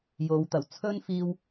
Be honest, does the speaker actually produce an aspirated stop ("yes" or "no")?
yes